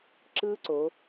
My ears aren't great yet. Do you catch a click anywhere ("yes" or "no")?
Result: yes